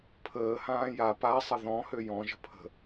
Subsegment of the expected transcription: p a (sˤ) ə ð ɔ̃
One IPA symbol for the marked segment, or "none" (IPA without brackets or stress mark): sˤ